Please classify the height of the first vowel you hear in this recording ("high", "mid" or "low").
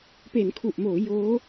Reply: mid